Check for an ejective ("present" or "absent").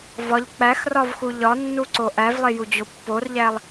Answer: absent